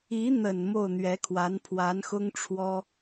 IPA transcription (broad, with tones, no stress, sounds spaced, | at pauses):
i˧˥ n̪ ə˨˩ n m o˥˩ ʊ̯ n̪ ɥ ɛ˧˥ kʰ w a˧˥ n pʰ w a˧˥ n x ʊ˥ ŋ ʈ͡ʂʰ w ɔ˥